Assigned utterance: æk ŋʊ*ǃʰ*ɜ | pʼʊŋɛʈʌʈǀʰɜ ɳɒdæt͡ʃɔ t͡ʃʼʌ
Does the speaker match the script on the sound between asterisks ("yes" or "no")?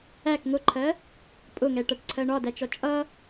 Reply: yes